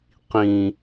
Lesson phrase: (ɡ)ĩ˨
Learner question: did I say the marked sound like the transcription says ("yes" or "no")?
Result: no